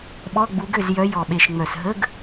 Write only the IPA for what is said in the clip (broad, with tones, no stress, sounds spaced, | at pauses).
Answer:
ɓ ɔ˧˥˧ ɡ͡b u˨˦ ɡ ø˥˩ z j œ˨˦ j ɔ˨˩ ɓ e˨˩ ʃ ŋ͡m œ˨˩ s ɦ ə˧˥˧ ɡ